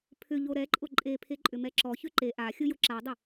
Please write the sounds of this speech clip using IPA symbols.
pʰ ʏ ʎ o ɾ ɛ ǃʼ ʊ ǃʼ e pʰ e ǃʼ ʏ m ɛ ǁ ɔ ç ʏ ǃ e ʔ a xʲ ʊ j ʊ ǁ a dˤ ʏ

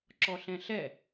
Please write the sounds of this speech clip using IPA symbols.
ǁ ɔ ɬ ɛ̃ ɬ ɛ

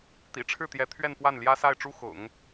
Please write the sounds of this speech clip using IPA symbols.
t̪ ḭ˨˩ ʈ͡ʂʰ ɻ̩˥˩ t̪ j ɛ˧˥ t̪ʰ ɥ ɛ˥˧ n p w a˥˩ n l j ä˥ s a˥˩ ɪ̯ ʈ͡ʂ u˥ x ʊ̰˨˩˦ ŋ

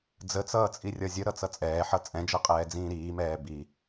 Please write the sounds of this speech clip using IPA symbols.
d͡z ə t͡s ʌː t͡sʼ i rʲ ʌ zʲ ə ɾ ʌ t͡s ʌ t͡sʼ ɛː ħ ʌ t͡sʼ ɛ̃ d͡ʒ ʌ qʼ ɛː d͡z ĩː ɾ iː m ɛː b i

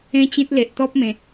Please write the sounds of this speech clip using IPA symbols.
ẽ˦ t͡ɕ ĩ˦ t̚ l e˨ ʔ t̪ ɔ˦ p̚ m ẽ˨ t̚

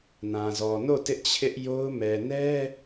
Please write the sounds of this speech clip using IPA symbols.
n ã˨ z ɔ˨ n o˦˨ t ɪ˦ ʔ t͡ɕʰ ɪ˦ ʔ j o˦ ʊ̯ m ɛ˨ n ɛ˦

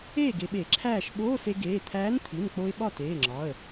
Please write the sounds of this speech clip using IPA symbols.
eː˥˨ ɡ e˧ ɓ e˧˩˧ ǁʰ æː˥˨ ʃ ɓ oː˧˥˧ s e˧ ɡ eː˩˧˩ t̪ʰ æː˧˥ n t̪ʰ i˩˧˩ n k͡p o˧ ɪ̯ ɓ ɒ˥˨ t eː˩˧˩ ŋ͡ǁ ɒ˩˧˩ ə̯

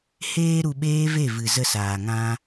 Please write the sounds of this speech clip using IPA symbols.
h eː˧ ɾ u˧ ɓ eː˦ v e˦˨ v ɨ˨ z ə˧ s aː˨ ŋ ã˧

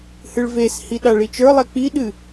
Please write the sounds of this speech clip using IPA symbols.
h ɨ ɭ v e s h i ɗ a ɭ i t͡ʃ ə˞ lˠ ɛ k͡p i ɗ ɨ

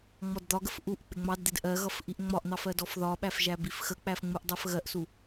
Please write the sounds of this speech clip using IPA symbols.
ŋ͡m ɔ d d̪ ɒ ɡ ə f ʔ u ʔ k͡p ɪ ŋ͡m ɑ d d̪ ɪ d ʔ ɜ ɣ ʌ f ʔ i ʔ ŋ͡m ɒ ʔ n̪ ɑ f ɜ d ɔ f ð ɒ ɓ æ f ʒ æ b i f x ə k͡p æ f ŋ͡m u ʔ dˤ ɜ f ɣ ɜ ʔ s u

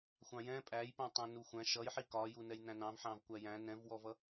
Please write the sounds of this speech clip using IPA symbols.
xʷ ɑ̃ j ɛ̃ pʼ æ j p æ̃ tˤ ɛ̃ n u xʷ æ̃ ʃ ʌ j ħ i k ɒ j u n ɛ j n æ̃ n ɑ̃ v ħ ɑ̃ v kʷ æ j æ̃ n ɛ̃ v w ɔ v ʌ

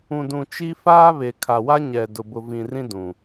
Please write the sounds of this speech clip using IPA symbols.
ũ˨ d ũ˨ t͡ʃ i˦ f aː˦ β e˨ kʰ a˨ w a˦ ɲ ɛ˨ d ʊ˨ b ʊ˨ v ĩ˨ r ĩ˦ d ũ˨

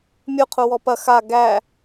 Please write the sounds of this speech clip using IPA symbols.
mʲ u qʰ u w ɔ p ɐ x a ɡ æ

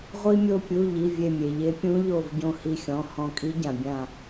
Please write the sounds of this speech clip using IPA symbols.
ʁʷ i˧ mʲ o˧˩ pʲ u˩˧˩ ʎ i˩˧˩ vʲ e˧˩ mʲ e˩ ʎ e˧˥ pʲ ũ˧˥ ʎ o˧˩ v ɟ õ˧˩ h i˧˩ xʲ ɔ̃˩˧˩ h ɔ̃˧˩ kʼ i˧˥ ɟ ã˩ bʲ ã˧˩

